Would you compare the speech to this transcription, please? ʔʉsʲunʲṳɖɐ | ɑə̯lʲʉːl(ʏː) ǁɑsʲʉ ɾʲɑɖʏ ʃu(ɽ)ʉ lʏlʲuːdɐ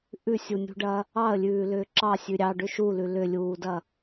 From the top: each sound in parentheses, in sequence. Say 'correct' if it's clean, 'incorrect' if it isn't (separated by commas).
correct, incorrect